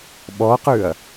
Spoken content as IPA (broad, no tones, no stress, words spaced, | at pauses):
ɓɔqʉɐ̯